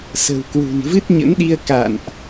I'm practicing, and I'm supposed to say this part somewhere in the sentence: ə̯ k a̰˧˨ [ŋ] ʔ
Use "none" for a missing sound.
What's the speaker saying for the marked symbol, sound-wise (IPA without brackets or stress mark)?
n